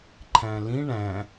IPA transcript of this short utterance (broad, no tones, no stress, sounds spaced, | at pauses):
ǃʰ æ̃ l ĩ ɳ æ̃